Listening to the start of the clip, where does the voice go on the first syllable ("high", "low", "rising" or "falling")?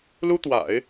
high